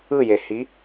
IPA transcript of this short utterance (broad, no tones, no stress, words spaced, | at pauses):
ɯjehi